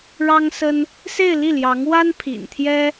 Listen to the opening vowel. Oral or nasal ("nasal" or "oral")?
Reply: oral